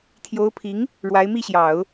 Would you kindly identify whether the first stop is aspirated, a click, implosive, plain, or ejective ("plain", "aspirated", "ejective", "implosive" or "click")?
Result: aspirated